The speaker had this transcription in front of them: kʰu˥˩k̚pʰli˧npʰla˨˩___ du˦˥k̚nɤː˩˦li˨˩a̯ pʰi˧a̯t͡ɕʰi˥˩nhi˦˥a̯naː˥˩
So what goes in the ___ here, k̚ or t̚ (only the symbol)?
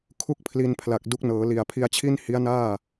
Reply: k̚